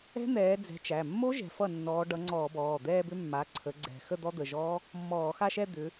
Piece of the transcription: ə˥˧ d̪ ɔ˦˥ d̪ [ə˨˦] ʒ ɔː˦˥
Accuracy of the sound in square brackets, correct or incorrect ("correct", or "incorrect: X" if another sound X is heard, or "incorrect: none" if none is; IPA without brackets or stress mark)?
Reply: incorrect: ə˩˧˩